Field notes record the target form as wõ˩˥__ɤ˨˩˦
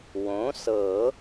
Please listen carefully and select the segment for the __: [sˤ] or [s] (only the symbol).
s